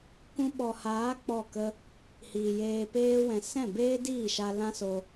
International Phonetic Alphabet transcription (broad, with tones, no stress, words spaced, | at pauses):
kũ˧ɓɔ˨haː˨˦ k͡pɔ˦˨kə˦ | hiː˨jeː˧peː˦wɛ̃˧ sɛ̃˦˨beː˦diː˦˨ʃa˧ lã˦so˧